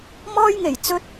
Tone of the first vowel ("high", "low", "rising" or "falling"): high